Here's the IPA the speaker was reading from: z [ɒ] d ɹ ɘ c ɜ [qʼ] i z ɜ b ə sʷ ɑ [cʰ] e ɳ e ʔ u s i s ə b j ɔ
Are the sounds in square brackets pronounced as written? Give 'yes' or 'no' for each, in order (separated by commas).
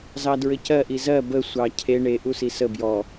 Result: no, no, yes